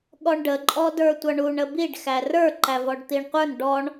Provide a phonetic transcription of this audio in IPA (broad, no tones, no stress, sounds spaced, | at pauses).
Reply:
ɠ ɔ ɳ ɖ ə ǃʼ ɔ d ə˞ tʷ ʌ ɳ u ɳ ə b i ɖ x æ r ə˞ ǃ æ v ɔ ɖ t̪ i ɳ qʷ ə˞ n ɖ ɔ ɳ